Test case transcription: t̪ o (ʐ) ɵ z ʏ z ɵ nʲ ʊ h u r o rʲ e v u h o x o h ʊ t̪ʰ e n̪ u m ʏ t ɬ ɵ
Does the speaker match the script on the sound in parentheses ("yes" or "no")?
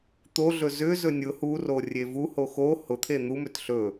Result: no